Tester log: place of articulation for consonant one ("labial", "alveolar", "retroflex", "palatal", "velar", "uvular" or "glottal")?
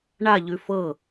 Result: retroflex